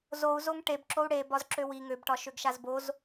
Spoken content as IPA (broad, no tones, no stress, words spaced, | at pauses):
zou̯zoŋ ʈebǁou̯ ɽe bɒzǁøwi ŋøbʈɒ ʃøɡʃazboz